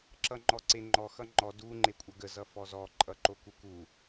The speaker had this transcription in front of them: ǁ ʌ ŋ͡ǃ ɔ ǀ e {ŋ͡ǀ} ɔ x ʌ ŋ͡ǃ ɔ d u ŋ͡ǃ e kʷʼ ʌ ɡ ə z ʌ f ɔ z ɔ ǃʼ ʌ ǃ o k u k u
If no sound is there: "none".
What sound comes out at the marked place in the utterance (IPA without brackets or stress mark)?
ŋ͡ǃ